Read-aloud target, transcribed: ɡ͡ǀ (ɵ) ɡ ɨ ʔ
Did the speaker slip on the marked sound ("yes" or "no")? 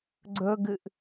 no